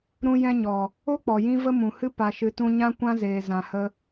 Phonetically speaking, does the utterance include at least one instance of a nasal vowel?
yes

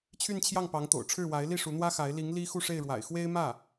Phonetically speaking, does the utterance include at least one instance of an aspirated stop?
yes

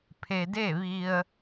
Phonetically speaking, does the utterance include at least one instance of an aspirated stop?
yes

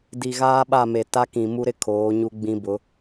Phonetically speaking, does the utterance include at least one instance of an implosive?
yes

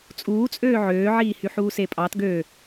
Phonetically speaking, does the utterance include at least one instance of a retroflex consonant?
no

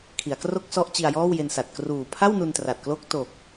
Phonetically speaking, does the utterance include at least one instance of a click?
no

